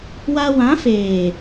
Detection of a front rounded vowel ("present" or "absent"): absent